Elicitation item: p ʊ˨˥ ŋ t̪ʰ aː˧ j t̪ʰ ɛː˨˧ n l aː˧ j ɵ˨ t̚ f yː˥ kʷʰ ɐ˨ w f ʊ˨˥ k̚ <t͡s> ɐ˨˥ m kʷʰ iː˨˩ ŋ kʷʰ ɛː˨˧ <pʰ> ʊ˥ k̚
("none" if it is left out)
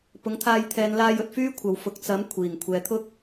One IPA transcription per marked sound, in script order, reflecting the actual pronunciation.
t͡s, t̪ʰ

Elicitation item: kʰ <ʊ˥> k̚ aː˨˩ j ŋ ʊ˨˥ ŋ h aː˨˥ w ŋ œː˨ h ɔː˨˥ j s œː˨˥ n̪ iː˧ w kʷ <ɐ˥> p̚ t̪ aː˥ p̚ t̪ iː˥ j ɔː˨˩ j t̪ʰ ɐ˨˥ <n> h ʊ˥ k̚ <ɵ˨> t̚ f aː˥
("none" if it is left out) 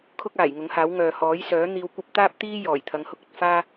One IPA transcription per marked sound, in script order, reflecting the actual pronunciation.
ʊ˥, ɐ˥, ŋ, ɵ˨

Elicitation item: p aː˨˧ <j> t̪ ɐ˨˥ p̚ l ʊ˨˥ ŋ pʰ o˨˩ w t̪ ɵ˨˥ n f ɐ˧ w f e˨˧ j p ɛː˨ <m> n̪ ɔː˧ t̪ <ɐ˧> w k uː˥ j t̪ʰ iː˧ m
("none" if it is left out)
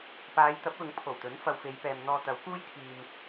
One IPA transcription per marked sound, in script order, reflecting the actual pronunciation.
j, m, ɐ˨˥

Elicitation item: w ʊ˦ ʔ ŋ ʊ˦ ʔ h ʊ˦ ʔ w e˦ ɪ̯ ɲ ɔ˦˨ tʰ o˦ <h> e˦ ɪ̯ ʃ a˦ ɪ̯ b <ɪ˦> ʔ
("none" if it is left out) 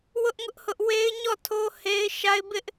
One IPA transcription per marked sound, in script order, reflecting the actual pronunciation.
h, ɪ˦

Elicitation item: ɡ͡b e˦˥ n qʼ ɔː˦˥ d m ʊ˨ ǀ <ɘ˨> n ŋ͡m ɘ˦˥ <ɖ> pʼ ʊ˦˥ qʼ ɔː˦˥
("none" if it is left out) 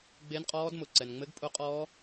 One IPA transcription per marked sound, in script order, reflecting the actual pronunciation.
ɛ˨, ɡ

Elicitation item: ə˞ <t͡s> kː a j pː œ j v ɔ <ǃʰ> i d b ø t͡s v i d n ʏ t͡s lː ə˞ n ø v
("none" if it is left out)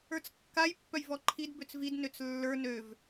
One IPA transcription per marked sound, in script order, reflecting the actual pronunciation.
t͡s, ǃʰ

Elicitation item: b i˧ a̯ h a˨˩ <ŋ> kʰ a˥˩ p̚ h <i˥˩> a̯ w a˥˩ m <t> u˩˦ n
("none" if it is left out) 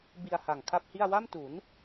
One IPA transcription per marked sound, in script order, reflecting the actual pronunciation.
ŋ, i˥˩, t

